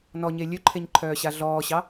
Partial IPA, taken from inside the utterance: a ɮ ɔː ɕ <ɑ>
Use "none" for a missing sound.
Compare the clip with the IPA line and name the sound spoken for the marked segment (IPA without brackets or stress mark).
ɑ